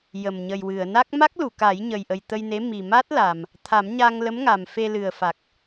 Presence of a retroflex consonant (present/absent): absent